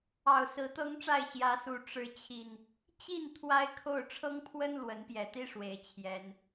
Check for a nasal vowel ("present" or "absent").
absent